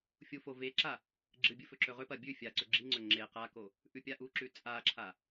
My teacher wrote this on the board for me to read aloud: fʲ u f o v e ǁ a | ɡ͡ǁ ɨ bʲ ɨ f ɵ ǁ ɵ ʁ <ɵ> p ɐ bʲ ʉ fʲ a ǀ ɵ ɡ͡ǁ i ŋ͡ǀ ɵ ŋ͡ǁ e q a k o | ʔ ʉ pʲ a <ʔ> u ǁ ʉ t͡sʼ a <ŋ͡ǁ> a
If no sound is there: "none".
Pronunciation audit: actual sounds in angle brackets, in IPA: ɵ, ʔ, ǁʰ

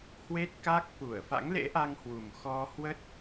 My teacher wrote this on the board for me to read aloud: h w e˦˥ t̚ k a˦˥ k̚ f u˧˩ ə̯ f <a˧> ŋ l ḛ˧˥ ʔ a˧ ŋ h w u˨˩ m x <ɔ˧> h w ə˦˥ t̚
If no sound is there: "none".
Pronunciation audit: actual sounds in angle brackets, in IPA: a̰˧˥, ɔ˧

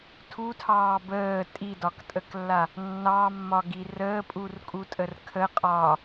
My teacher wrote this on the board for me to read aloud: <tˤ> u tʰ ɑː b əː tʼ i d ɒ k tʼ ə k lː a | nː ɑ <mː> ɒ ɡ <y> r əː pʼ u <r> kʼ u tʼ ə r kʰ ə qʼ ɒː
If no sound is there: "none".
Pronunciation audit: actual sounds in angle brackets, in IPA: tʰ, mː, i, r

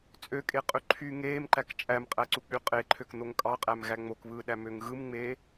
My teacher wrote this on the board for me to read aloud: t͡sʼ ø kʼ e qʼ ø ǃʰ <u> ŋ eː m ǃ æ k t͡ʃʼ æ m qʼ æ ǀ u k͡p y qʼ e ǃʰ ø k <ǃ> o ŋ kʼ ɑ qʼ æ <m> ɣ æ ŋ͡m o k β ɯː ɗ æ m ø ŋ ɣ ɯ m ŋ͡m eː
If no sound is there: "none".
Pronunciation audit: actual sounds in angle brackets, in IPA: y, n̪, m

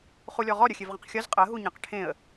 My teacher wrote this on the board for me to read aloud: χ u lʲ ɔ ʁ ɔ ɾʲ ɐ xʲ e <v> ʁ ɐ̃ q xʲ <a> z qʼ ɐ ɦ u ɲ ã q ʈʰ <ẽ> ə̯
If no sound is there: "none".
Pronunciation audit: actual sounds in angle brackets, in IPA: v, ɐ, ẽ

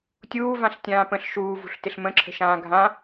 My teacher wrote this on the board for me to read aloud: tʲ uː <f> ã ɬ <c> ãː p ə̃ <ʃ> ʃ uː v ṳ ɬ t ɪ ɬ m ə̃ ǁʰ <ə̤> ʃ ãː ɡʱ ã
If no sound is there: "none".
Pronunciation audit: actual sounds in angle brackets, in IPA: v, tʲ, ɬ, ə̤

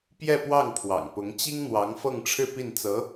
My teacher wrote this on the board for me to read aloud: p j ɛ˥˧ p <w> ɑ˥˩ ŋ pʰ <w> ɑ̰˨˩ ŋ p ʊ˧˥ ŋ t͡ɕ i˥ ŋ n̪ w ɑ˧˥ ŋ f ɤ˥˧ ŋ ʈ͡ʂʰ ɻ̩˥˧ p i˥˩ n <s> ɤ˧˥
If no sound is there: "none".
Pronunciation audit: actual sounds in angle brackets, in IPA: w, w, t͡s

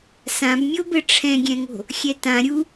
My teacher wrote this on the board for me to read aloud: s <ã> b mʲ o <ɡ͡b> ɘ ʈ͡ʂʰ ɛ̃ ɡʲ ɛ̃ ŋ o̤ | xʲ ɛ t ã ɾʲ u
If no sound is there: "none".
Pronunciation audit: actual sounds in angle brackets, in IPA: ã, b

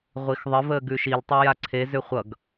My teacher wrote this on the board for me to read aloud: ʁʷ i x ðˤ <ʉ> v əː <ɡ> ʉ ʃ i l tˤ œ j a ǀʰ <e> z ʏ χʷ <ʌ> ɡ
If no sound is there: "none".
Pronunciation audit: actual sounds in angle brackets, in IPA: ə, ɡ, e, ʌ

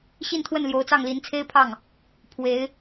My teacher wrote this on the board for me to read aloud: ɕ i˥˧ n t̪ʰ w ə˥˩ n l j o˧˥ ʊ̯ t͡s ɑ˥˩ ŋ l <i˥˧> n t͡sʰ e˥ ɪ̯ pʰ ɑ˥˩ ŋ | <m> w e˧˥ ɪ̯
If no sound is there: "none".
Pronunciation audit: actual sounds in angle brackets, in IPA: i˧˥, pʰ

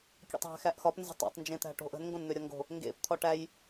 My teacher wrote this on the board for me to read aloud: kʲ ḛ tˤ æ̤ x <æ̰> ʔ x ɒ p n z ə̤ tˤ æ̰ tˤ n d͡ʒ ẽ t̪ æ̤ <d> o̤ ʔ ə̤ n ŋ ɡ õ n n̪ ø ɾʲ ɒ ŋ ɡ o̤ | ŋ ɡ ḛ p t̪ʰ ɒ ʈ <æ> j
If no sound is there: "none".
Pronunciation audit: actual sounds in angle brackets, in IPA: æ, ʈ, æ

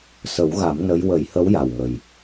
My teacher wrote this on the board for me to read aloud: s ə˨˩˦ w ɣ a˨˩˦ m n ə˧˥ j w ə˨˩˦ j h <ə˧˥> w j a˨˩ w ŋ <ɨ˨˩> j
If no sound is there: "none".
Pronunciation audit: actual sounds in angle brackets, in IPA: ə˧˥, ə˨˩

